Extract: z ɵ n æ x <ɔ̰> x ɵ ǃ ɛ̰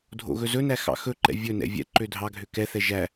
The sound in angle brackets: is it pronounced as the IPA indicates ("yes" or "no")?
no